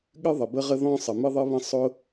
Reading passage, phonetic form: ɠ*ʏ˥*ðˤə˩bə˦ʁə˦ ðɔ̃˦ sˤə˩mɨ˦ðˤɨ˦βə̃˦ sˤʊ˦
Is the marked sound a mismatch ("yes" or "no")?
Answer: yes